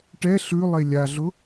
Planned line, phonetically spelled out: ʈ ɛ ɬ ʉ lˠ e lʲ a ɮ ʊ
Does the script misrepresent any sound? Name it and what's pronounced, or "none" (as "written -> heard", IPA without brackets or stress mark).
none